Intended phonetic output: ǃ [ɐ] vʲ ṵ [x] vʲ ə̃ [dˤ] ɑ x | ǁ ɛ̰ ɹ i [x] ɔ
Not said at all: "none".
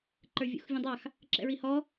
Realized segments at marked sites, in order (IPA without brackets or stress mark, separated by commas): ə˞, x, dˤ, h